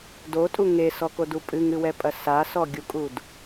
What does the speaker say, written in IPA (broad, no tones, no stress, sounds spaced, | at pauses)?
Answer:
d o tʼ u ŋ e s ɔ k o d u pʼ ɨ ŋ ɨ w ɛ pʼ ɐ s a s ɔ ɡʲ u kʼ u d